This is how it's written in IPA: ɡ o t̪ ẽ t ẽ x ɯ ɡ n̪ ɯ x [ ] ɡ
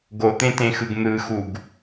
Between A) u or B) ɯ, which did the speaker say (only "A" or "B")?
A